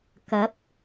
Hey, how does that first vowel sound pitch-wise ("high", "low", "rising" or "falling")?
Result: rising